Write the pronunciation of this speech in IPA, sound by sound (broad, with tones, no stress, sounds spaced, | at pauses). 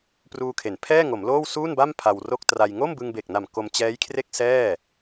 p r uː˧ kʰ e˩˦ n pʰ ɛː˥˩ ŋ o˩˦ m l oː˥˩ w s uː˥˩ n b a˥˩ m pʰ a˧ w r o˥˩ k̚ t r a˧ j ŋ o˥˩ m b ɯ˧ ŋ b e˨˩ k̚ n a˨˩ m k o˧ m t͡ɕ ɛː˦˥ j kʰ r e˥˩ k̚ s ɛː˥˩